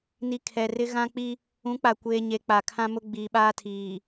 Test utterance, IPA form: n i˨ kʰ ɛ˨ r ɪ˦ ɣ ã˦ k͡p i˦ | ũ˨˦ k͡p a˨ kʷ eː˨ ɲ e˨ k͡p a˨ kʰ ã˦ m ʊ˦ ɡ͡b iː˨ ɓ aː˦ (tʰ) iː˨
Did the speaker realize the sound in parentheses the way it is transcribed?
yes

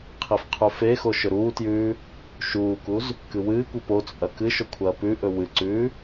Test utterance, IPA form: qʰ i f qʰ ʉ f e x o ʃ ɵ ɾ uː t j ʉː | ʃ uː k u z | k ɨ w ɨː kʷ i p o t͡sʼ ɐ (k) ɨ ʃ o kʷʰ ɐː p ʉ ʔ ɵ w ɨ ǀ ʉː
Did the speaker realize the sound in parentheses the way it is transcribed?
yes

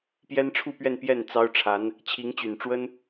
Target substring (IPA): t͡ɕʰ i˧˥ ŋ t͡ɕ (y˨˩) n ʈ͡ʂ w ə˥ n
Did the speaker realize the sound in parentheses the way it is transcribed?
yes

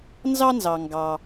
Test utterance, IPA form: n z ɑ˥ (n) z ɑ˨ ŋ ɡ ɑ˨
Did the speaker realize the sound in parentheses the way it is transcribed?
yes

